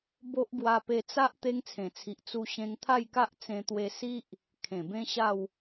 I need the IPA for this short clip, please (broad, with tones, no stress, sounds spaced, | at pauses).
b o˦ ʔ ɡ w a˧ p e˧ t͡s a˦ ʔ t̪ e˦ ŋ t͡sʰ ẽ˨˩ t͡sʰ i˨ ʔ t͡s u˧ ɕ ẽ˧ ŋ t̪ʰ a˥˧ j k a˦ ʔ t͡s ẽ˧ t̪ w e˧ s i˦ ʔ | kʰ ẽ˨˩ b ẽ˦ ɕ a˥˧ w